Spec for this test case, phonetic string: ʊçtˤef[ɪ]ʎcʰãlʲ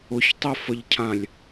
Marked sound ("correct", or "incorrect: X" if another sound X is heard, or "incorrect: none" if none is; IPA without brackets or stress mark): incorrect: ə